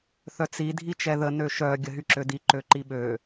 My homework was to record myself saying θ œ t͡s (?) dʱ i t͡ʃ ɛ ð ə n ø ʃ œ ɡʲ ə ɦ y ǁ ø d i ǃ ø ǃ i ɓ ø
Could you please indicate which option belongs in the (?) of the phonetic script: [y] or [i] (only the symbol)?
i